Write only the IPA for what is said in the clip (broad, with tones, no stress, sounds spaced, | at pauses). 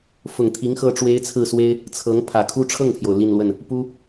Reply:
f ʊ˨˩ ŋ t̪ʰ i˧˥ ŋ x ɤ˥ ʈ͡ʂ w e˥ ɪ̯ t͡sʰ ɹ̩˥˩ s w e˥ ɪ̯ | t͡sʰ ɤ˧˥ ŋ pʰ ä˨˩ kʰ u˥ ʈ͡ʂʰ ɤ˥˩ ŋ pʰ j o˩ ʊ̯ l i˥˧ n l w ə˥˩ n | p u˥